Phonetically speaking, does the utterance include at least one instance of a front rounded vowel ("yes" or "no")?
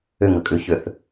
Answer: yes